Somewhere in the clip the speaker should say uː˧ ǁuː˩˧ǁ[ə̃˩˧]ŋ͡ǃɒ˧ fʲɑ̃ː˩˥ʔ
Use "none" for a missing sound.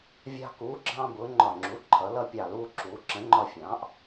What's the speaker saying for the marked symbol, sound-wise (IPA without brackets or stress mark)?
ə̃˩˥